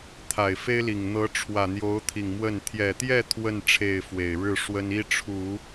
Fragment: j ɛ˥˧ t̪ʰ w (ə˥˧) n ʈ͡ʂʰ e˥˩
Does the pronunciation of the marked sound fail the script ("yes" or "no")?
no